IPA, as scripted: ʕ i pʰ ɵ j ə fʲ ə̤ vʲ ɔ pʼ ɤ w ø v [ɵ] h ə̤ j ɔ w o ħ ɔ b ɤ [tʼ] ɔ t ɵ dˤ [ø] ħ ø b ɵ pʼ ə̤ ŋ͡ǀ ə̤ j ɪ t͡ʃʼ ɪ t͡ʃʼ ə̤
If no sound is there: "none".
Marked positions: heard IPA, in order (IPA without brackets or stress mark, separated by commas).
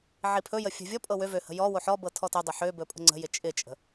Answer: ø, tʰ, ɵ